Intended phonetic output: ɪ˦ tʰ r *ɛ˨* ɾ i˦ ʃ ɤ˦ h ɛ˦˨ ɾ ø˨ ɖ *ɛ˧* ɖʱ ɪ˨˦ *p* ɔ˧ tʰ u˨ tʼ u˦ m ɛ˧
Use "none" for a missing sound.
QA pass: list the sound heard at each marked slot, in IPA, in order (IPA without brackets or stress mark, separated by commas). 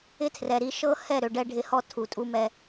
ɛ˨, ɛ˧, h